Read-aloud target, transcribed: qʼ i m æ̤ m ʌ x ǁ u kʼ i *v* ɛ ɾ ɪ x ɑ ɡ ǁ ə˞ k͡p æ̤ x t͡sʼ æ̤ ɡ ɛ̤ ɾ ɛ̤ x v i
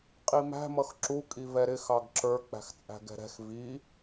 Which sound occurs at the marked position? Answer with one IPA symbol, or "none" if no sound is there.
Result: v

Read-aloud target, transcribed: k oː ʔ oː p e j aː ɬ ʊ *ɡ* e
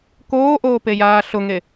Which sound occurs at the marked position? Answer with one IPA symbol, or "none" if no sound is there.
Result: ŋ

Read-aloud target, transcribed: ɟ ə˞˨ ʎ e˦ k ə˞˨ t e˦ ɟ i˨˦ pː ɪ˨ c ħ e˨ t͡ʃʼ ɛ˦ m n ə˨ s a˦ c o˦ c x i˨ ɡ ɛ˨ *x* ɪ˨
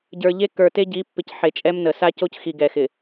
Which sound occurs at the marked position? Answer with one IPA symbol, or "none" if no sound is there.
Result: x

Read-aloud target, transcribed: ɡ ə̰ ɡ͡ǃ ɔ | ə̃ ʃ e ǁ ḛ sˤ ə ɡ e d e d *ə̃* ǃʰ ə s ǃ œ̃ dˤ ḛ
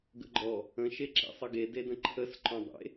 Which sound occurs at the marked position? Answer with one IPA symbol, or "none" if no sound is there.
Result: ə̃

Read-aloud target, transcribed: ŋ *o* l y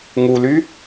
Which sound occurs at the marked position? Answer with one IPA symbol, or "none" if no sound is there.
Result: u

